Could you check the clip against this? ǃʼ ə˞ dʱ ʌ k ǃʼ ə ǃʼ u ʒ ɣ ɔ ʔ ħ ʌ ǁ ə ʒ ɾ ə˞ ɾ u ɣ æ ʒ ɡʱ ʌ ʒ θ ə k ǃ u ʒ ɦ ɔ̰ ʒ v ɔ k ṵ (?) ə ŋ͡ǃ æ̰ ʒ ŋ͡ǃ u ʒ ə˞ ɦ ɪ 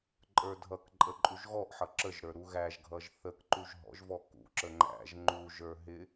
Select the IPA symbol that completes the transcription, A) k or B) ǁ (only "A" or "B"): B